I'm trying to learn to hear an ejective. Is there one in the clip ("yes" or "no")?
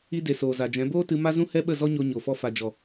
no